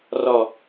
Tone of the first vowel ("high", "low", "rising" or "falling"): falling